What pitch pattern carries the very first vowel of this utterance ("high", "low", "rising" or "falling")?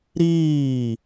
falling